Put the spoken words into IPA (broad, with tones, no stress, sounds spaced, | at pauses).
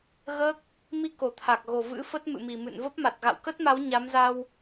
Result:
ɣ əː˦˥ k̚ | m i˧ k o˨˩ t̪ʰ a˨˩ k̚ ɣ o˨˩ v ɨ̰˧˥ f ə˦˥ t̚ m ɨ̰˧˨ m i˨˩ m ɨ̰˧˨ n v ə˦˥ p̚ m a˨˩ t̚ ɣ a̰˧˨ w k ə˦˥ t̚ m a˨˦ w ɲ a˨˦ m z a˧ w